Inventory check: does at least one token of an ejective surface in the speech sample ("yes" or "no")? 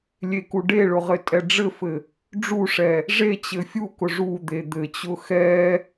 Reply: yes